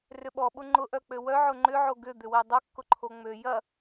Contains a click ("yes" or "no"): yes